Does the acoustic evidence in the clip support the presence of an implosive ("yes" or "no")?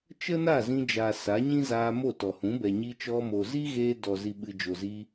yes